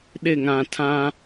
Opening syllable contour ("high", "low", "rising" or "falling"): falling